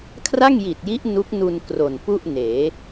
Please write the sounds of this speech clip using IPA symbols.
kʰ r a˥˩ ŋ j i˨˩ t̚ j i˦˥ ʔ n u˦˥ k̚ n u˧ n k r o˨˩ n p u˥˩ ʔ n eː˩˦

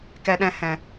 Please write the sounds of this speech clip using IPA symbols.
k ɛ˧ ɗ ɛ̃˧ h ɛ̃˨

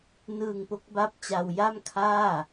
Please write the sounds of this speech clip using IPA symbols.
n ɯː˧ ŋ p o˦˥ k̚ b a˦˥ p̚ t͡ɕ a˧ w j a˥˩ m kʰ aː˥˩

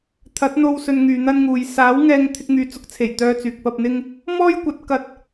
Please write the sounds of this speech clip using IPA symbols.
t̪ʰ ɐ˨˥ t̚ n̪ o˧ w s ɵ˧ n ŋ yː˨ n̪ ɐ˥ n ŋ uː˨ j s aː˨˥ w ŋ ɛː˧ ŋ t̪ʰ ɪ˧ k̚ ŋ yː˨ t͡s ʊ˨˥ k̚ t͡sʰ e˨˩ j t̪ œː˧ t͡s yː˨ k̚ p ɐ˧ p̚ n̪ ɪ˥ ŋ | m ɔː˥ j kʷ ɐ˨˥ t̚ k ɐ˧ t̚

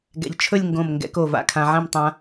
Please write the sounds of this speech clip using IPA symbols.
ɡ ɛ̰˧ ʎ t͡ʃʰ ɵ˥˧ lʲ ŋ ɡ õ˧˩ m ŋ ɡ ɛ̰˧ k o˧˩ v a̰˧ kʰ ã˧ ʕ ɛ̃˥˧ m tˤ ã˧

